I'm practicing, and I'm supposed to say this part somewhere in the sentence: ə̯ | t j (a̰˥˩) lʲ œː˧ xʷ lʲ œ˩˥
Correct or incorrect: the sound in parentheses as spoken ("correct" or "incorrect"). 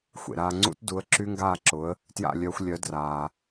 correct